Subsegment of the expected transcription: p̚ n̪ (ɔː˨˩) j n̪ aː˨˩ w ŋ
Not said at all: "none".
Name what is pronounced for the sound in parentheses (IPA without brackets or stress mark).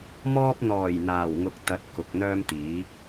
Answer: ɔː˨˩